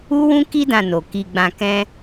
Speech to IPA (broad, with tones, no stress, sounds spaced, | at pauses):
u˦ w ũ˦ k i˦ d ã˧ n o˨ k i˧ ɡ͡b ã˧ k ɛ̃˦